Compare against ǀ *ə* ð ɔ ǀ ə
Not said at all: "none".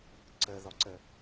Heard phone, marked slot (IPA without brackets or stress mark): ə